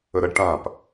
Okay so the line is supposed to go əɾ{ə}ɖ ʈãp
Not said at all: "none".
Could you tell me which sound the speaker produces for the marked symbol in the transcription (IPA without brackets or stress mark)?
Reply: ə